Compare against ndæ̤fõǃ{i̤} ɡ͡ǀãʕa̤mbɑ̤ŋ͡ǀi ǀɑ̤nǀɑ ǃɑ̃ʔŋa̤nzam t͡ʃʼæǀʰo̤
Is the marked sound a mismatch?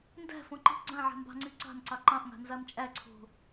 no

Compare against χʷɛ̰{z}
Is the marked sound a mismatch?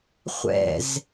no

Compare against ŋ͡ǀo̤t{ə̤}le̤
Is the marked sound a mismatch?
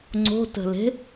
no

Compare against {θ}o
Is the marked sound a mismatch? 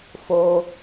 yes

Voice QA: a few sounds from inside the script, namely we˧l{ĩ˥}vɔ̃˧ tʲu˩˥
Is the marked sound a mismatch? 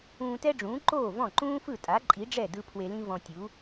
no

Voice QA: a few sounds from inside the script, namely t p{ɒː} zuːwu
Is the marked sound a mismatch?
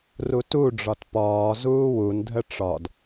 no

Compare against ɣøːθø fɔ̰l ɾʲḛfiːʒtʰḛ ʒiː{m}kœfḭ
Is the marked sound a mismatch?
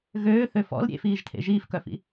yes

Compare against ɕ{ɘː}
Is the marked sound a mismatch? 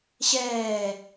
yes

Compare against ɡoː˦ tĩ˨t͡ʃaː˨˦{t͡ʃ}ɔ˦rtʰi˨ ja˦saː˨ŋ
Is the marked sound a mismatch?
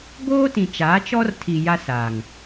no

